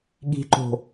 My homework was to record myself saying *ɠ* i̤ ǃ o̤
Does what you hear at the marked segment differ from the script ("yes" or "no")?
no